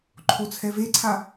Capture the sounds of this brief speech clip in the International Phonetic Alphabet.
ǃʰ o t͡sʰ ɛ v e ǀʰ a

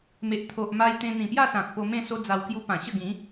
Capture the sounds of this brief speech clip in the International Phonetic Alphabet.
m e˨ ʔ t̪ʰ o˨ ʔ m a˧ j t̪ ẽ˧ n̪ ĩ˨˩ p j a˥˧ s ã˨ k̚ p o˧ m ẽ˥˧ s o˦ d͡z a˧ w k j u˦ p ã˨˩ ɕ ə˥˧ ɡ ĩ˨˦

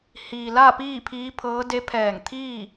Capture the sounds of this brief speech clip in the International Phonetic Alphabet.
h iː˩ l a˥˨ p iː˥˨ pʰ iː˧˥ pʰ ɤː˧˥ d e˧˥ pʰ ɛː˧˩ ŋ t̪ʰ iː˥˨

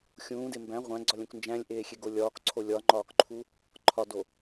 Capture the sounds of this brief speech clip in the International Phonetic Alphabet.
xʲ ũː d e m b æ̃ ʁʷ æ̃ ɡ͡ǀ ɒ lʲ õ k n d͡ʒ æ̃ lʲ ʔ eː xʲ e ɡ o lʲ ɒː k ǀʰ o lʲ ɒ ŋ͡ǃ ɒː k ǃʰ u | ǃʰ ɒ d o

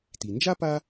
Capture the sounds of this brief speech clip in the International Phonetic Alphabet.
t i˩ n d͡ʒ a˥ p a˦

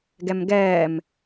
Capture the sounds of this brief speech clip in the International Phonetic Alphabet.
ɡ ɛ m ɡ ɛː m

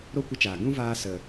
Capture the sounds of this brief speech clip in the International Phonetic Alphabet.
ɾ o˦ kʷ ə˧ t͡ʃ aː˨ ɡ ũ˦ v aː˧ s ə˨

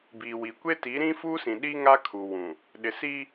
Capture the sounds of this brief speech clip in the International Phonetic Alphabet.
b i˨ w i˨ kʷ e˦ t i˨˦ ɾ ĩ˦ f u˦ s ĩ˨ ɗ i˦ ŋ a˦ kʰ u˨ w ũ˨ | ɗ ɪ˨ s i˦

